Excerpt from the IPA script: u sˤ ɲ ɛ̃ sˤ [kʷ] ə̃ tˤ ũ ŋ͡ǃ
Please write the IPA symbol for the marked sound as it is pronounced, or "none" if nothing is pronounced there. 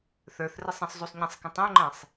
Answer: k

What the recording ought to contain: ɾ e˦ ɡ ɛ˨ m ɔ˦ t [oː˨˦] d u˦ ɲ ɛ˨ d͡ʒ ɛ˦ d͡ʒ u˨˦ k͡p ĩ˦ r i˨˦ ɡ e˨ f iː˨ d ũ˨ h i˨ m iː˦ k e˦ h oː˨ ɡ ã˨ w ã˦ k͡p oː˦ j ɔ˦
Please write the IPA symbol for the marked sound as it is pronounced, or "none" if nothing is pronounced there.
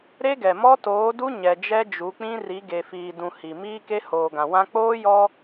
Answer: oː˨˦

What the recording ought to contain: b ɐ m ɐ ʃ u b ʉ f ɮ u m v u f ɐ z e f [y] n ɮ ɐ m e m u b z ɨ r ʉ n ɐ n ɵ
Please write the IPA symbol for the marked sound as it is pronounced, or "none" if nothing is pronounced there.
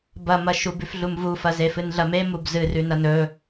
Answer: ɨ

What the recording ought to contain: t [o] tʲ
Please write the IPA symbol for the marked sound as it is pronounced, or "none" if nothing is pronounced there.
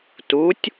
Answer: u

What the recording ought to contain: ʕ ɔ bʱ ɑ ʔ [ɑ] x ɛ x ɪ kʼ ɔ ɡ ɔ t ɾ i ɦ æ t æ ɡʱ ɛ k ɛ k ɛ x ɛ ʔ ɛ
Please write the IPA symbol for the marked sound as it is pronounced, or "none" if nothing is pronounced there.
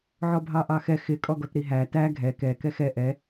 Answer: ɑ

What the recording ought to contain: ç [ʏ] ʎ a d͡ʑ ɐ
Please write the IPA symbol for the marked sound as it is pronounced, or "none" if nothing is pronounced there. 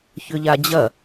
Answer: ʏ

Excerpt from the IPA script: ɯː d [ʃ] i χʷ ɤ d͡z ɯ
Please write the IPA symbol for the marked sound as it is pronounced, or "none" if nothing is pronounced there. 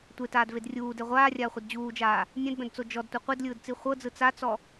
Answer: t͡s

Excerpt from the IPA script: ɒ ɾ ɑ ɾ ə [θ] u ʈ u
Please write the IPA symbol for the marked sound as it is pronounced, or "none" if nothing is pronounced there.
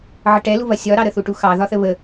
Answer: θ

